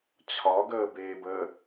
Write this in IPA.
t͡ɕʰ ɒ ɡ əː b eː b ə

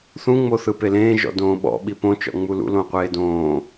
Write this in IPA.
θ ũ ŋ͡m o θ ɯ p e l ẽː ʒ ɔ̰ d õː ɓ ɔ̰ ɓ i p õ t͡ʃ ɔ̰ ŋ͡m u l ṵ l õ qʷ eː d õː

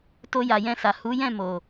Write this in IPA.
t o˧ j a˨ j ɛ̃˧ s a˨ h u˨˦ j ɛ̃˦˨ m o˨

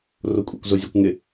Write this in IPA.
r o kʷʼ ḛ kʷ z ʊ zʲ ɛ kʷ ŋ ɪ

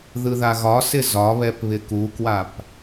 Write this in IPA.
ð ɯ ð a ɣ ɒ s ɪ z ɒ β ɛ p β ɪ k u k w a p

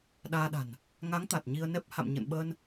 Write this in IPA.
ɗ aː˧ ɗ a̤˨˩ n | ŋ a˨˦ ŋ t̪ a˨˩ t̚ ɲ i˧ ə̯ n ɛ˦˥ p̚ h a̰˧˨ m ɲ ə̰˧˨ n ɓ ə˧ n

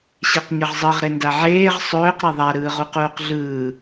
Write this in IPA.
ɕ e q ɲ ə ʁ zˤ ɯ ʁ ɾ e n d a ʕ eː ʁ sˤ ɵː q ɾ e ðˤ a ɾ ɯː ʁ u q uː q ɮ ɯː

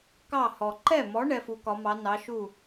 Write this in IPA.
k ɑ˥˩ h ɔ˩ ǃ ɛ˥˩ m ɔ˨˥ ɳ ɛ˨˥ f u˨˥ k ɒ˨˥ m ɑ˨˥ n ɑ˨˥ ʃ u˥˩

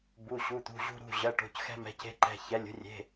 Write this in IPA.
b u˩˧˩ ɕ u˩˧˩ t̪ ṳ˩˧˩ ʑ ṳ˧ ɾ ṳ˩˧˩ ʑ ɜ˩˧˩ ʈ o̤˩˧˩ c x ɛ̤˧ m ɛ̤˩˧˩ c e̤˧ ǃ ɛ̤˩˧˩ ç ɛ˩˧˩ lʲ ṳ˧ rʲ e̤˩˧˩

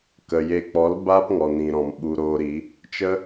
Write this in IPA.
k ə˨ j e˧ k͡p ɔ˨˦ l b aː˦ p ŋ ɔ˨ n ĩ˨ ɾ ɔ̃˨ m ɓ u˧ ɾ oː˧ ɾ i˨˦ | t͡ʃ ə˦

